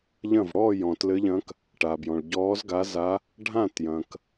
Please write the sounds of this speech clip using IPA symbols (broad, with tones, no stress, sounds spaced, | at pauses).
ʎ ɐ̃˥˩ v ɽ ɔː˥˩ j ɔ̃˩ t l ɘ˨˦ ʎ ɐ̃˨˦ k | ʈ a˩ b j ɔ̃˩ ɭ ɟ ɔː˨˦ z ɡ a˨˦ z a˨˦ | ɖʱ ã˥˩ t j ɐ̃˩ k